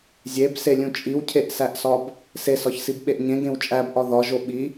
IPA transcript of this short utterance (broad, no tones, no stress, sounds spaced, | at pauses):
zʲ e b s e lʲ ũ t͡ʃʼ i w cʰ e ʔ s æ ʔ s ɒ b | s e s ɒ ç s i b ɓ e ʔ ɲ ẽ ɡ ẽ w t͡ʃʼ æ b ʔ ɒ ð ɒ ʒ o ɓ i